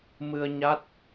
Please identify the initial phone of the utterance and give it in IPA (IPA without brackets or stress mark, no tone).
m